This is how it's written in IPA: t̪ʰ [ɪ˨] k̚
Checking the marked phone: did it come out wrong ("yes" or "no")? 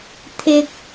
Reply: yes